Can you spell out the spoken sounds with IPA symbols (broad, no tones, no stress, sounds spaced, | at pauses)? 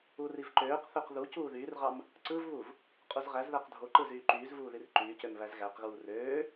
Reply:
u r i v ǃ øː q θ ø q ð u c uː ð yː r ʁ ɑ m | ǀ ɯ v β u v | qʼ u z ʁ æ z ð æ q dʱ o ǃ ɯ z yː ǃ yː z v uː ð i r ǃ yː c ø m β æ z ɣ æ q ɣ uː r øː